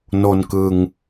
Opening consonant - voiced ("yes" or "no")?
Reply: yes